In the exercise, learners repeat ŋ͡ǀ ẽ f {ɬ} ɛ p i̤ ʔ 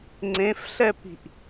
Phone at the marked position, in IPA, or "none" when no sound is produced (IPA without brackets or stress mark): ɬ